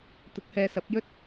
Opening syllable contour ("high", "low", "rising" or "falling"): rising